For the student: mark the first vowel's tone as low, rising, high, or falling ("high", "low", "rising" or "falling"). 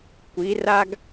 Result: rising